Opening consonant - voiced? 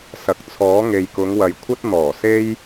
no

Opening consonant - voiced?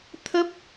no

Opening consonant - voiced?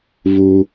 yes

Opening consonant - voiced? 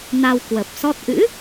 yes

